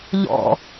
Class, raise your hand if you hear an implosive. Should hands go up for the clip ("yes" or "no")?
no